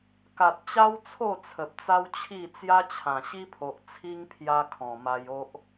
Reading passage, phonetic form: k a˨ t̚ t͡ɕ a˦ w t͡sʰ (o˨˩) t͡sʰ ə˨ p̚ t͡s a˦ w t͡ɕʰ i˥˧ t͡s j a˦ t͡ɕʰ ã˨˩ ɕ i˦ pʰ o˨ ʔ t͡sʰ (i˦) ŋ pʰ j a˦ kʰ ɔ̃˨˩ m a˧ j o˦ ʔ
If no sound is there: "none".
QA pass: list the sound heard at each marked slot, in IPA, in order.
o˥˧, i˦

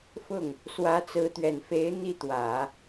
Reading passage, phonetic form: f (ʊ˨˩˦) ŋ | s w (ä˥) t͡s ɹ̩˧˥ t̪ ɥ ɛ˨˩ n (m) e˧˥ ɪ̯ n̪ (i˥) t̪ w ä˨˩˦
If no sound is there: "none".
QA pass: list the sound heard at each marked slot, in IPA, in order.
ʊ˥˩, ä˧˥, f, i˥˩

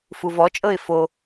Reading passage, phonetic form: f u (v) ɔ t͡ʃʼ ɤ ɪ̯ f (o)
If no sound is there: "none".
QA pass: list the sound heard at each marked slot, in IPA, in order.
v, o

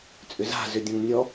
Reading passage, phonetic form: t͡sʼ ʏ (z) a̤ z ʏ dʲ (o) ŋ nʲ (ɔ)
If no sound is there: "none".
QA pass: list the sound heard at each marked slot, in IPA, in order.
z, õ, ɔ

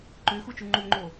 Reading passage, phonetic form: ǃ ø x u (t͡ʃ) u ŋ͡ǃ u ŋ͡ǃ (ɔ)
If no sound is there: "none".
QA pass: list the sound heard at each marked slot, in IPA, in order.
t͡ʃ, o

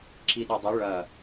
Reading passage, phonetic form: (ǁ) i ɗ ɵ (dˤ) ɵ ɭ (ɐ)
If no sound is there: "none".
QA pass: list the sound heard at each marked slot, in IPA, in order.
ǁ, dˤ, ɐ

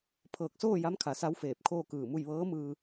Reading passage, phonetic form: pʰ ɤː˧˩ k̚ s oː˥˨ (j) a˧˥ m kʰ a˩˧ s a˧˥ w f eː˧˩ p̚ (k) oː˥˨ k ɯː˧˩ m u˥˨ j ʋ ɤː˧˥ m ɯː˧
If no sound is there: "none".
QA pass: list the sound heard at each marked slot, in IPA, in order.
j, kʰ

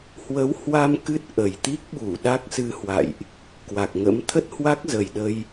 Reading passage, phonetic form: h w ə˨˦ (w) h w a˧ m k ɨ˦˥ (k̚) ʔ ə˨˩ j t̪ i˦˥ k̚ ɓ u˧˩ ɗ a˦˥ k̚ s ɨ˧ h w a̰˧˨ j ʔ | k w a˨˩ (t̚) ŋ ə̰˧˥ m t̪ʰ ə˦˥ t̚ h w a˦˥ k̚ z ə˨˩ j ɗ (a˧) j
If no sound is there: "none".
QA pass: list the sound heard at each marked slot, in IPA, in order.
w, t̚, k̚, ə˧

